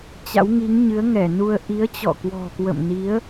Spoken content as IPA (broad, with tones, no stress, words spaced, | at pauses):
t͡ɕa̰˧˥wŋi˨˦ŋ ɲɨ˨˦ə̯ŋɛ˧˩nu˧ə̯ ʔi˨˦ə̯t͡ɕɔ̰˧˨kwɔ̤˨˩kwə̰˧˨m ni˨˦ə̯